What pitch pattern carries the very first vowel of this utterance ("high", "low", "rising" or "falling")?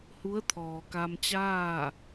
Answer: rising